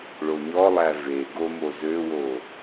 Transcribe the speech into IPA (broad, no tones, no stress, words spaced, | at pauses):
ɭoɲɔlˠæ ve ɡomo zøwo